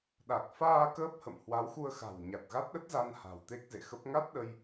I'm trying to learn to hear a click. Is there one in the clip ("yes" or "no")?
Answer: no